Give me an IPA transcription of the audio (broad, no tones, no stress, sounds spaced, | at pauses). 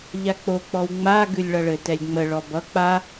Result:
ʎ a k͡p o k͡p ɔ w ŋ͡m a ɡ ʉ lʲ ɭ ʌ ɭ ɘ t ɛ lʲ ŋ͡m ə ɭ ɔ b ʌ k͡p a